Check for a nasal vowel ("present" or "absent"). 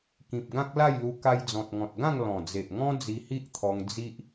present